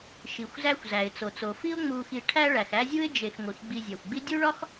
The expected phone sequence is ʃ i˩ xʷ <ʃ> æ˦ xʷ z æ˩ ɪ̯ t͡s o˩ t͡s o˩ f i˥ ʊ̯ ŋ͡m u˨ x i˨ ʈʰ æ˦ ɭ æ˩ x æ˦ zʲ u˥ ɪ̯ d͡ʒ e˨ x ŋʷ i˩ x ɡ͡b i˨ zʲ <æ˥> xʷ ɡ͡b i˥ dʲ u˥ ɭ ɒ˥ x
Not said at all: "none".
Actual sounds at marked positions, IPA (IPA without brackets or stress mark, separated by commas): z, æ˩